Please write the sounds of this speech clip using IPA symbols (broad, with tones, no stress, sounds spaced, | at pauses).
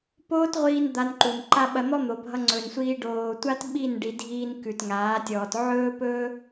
p oː˦ t ʁʷ iː˧ n d̪ a˧ n ǃ u˨ n ǃ a˦ ɓ ɐ˧ n̪ ɔ˦ n̪ o˨ bʱ ʌ˧ ŋ͡ǀ ɵ˨ n sʷ iː˧ ɖ oː˨ tʷ a˦ t ɓ i˦˨ n ɖ i˨ dʱ iː˧ n k ʉ˨ t ŋ aː˨˦ tʲ ɔː˨ t ʕ ɵː˦ p ɵː˦